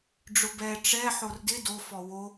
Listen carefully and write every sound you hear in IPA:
ɖ͡ʐʊbɛ ʈ͡ʂɛ ħordɪ do fɔwo

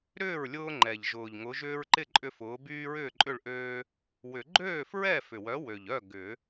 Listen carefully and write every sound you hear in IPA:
ɾʏː˥˩ɹ lʲʊː˦ŋ͡ǃɛ˨˩ʎʒʊː˨˩ʎŋʊ˨˥ ʒʏː˦ɹǃɪ˥˩ ǃʼʏ˦fʊː˨˥ byː˦ɹʏː˥˩ǃʼʏ˥˩ɭʔøː˦ | wʏ˨˩˦ ɡ͡ǃøː˥˩fɹɛ˥˩ fʏ˨˩wœ˨˥wø˨˩ʎœ˥˩ ɡʏ˨˩˦

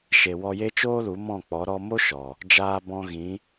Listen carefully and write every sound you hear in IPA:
ʃe˨wɔ˧je˦ t͡ʃoː˦lu˨˦mɔ̃˦˨k͡pɔ˨˦ ɾɔ˦ mo˦ʃɔ˨ | d͡ʒaː˧bɔ̃˧ɣĩ˨˦

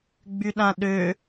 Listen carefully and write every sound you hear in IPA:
ɡ͡byɗãɗø

